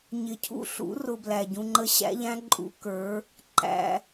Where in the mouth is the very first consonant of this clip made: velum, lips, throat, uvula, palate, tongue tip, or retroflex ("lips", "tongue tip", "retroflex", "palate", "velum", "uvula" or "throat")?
palate